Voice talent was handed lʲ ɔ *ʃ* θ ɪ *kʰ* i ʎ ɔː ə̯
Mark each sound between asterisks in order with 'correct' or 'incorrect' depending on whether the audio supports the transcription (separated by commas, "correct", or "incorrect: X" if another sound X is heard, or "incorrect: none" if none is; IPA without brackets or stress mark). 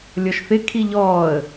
correct, correct